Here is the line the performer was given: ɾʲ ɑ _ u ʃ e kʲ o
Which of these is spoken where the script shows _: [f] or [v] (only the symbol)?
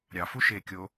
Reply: f